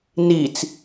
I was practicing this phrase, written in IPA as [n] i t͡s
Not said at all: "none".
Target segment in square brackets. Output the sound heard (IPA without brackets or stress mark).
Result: n